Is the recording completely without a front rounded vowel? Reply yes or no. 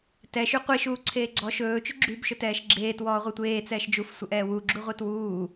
no